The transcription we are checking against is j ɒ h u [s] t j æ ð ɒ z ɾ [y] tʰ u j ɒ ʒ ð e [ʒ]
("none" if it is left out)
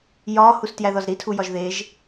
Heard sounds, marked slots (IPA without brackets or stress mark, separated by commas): s, i, ʒ